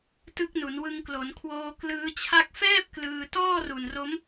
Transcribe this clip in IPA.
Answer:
t ɯ˦˥ k̚ n u˩˦ n w ɯ˧ ŋ k l o˩˦ n kʰ w oː˧ k l ɯː˦˥ t͡ɕʰ a˥˩ k̚ f ɛː˥˩ p̚ k l ɯː˧ t ɔː˥˩ r u˨˩ n r o˦˥ m

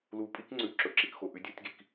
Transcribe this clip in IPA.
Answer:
l u˨ pʼ i˦ k ŋ͡ǀ ʉ˨ ǁ ɵ˨ ǁ i˨ k x o˨ ʔ ʉ˨ dʲ u˦˨ tʲ ɡ i˨ k

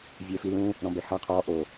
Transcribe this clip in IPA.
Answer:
vʲ ɛ f i l ũ | ɾ ɔ̃ b ɛ h a qʰ ɔ ʔ o

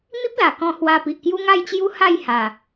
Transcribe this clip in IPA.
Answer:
n̪ i˦ p̚ l a˨˩ k ɔ̃˧ h w a˧ p i˨ ʔ k j u˦ ŋ a˥˧ j t͡ɕ j u˦ h a˥˧ j h a˨˩

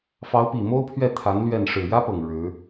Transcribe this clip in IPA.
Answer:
f ɑ˧˥ ʊ̯ p i˨˩ m o˥ ʊ̯ pʰ ɥ ɛ˥˩ t̪ʰ a˧˥ n l ɥ ɛ˥˩ n ʂ ɻ̩˨˩ j ä˥ p ɤ˨˩ ŋ ɻ ɻ̩˧˥

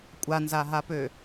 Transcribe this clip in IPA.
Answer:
kʷʼ a n z a ɦ a p ø

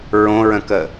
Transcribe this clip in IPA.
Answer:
ɹ õ ɹ ə̃ k ə

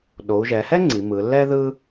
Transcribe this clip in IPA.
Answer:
ɗ o˩˧ u̯ ʒ ɛ˩˧ h ɛ˥ ŋ͡ǀ i˩˧ m ɯ˩˧ lː ɛ˥ ð ɯ˥

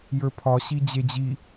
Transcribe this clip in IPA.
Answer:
j ə˞ pʰ ɒ ɕ i d͡ʑ e d͡ʑ i

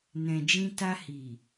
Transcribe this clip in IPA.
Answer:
n ɛ̃˨ d͡ʒ ĩ˧ t a˧ h i˨

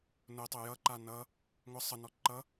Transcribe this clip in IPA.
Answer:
n ʊ tˤ ʊ j ʌ ǃ a n ʌ | ŋʷ ʌ sˤ ə n ɔ ǃ ʌ

